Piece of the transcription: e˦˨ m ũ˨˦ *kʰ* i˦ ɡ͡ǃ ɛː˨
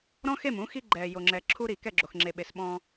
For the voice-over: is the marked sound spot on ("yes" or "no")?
no